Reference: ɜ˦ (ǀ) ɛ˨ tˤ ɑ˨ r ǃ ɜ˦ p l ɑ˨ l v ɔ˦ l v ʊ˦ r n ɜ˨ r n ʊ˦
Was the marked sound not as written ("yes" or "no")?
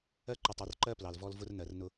yes